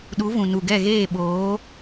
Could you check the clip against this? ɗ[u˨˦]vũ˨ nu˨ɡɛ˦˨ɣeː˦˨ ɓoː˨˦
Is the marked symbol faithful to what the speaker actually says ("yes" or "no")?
yes